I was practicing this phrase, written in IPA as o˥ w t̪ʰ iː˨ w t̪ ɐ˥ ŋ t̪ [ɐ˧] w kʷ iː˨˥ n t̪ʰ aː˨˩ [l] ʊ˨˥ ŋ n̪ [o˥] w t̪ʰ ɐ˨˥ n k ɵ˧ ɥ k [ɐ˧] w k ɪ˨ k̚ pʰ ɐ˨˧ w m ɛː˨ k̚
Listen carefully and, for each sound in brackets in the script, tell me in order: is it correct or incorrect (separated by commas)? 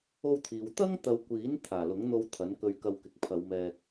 incorrect, correct, incorrect, correct